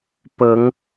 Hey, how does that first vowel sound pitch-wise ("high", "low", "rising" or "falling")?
rising